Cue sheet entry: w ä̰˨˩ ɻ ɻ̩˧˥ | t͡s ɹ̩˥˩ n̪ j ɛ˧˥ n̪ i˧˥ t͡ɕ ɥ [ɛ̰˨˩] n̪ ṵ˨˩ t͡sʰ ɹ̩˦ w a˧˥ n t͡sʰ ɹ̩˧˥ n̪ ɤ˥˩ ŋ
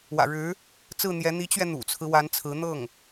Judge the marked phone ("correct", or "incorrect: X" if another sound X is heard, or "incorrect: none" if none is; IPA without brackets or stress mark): incorrect: ɛ˧